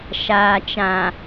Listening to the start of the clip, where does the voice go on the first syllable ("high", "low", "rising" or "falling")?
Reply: low